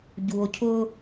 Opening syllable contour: low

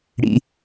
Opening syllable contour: low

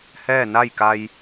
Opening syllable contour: falling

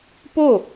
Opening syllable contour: falling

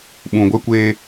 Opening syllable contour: low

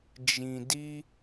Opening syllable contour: low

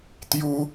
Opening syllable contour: high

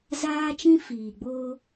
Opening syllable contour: high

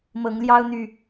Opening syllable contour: rising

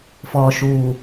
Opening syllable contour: low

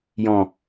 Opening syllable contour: low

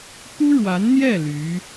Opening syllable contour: high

